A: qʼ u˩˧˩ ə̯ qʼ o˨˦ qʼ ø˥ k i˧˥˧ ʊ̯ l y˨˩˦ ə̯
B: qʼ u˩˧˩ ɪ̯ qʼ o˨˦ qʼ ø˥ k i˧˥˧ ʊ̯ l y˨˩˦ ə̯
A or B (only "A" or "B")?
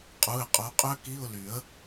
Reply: B